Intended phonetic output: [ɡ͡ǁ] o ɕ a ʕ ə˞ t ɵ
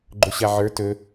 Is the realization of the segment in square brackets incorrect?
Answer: yes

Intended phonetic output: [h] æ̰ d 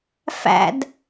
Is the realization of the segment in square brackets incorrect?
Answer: yes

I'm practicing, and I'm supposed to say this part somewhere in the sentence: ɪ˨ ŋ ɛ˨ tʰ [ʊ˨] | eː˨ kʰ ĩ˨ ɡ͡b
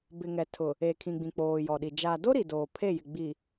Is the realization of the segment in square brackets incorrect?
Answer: no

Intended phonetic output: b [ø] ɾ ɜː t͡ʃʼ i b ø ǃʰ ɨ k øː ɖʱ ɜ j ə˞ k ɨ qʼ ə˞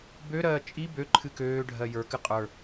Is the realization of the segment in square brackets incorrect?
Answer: no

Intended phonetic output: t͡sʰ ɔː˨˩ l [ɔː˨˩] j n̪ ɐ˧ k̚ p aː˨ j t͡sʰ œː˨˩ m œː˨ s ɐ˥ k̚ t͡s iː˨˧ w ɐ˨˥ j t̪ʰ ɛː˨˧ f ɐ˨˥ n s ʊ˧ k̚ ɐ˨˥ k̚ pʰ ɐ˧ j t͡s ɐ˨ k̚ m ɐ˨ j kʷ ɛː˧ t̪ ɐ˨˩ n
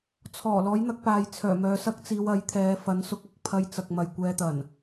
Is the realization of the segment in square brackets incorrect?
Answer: yes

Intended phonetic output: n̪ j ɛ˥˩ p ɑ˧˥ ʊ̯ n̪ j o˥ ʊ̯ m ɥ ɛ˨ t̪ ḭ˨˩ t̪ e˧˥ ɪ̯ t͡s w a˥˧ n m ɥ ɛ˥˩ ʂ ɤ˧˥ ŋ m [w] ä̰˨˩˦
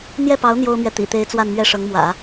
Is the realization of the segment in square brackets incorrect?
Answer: no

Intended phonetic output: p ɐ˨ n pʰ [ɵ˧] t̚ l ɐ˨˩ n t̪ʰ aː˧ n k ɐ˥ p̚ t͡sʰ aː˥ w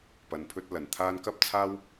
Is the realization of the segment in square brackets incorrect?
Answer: no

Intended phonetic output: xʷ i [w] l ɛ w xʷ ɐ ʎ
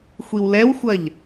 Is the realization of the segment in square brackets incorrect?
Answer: no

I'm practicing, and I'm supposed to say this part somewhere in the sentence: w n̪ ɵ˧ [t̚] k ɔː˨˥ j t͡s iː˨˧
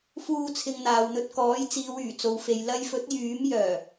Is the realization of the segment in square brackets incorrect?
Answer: no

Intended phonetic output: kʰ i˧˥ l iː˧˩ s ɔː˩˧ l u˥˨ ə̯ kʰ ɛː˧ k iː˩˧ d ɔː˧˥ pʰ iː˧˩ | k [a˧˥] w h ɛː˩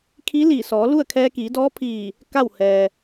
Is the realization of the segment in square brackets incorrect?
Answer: yes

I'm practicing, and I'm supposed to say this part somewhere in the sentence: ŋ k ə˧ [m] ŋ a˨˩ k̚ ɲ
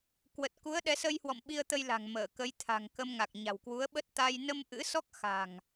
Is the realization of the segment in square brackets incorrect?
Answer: no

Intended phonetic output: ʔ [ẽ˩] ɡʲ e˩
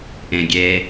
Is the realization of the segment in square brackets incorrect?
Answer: no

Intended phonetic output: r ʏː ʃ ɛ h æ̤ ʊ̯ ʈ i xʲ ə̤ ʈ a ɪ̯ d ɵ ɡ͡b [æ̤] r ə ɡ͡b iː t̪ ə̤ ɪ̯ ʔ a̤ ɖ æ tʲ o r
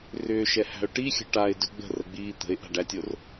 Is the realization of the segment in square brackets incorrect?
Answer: yes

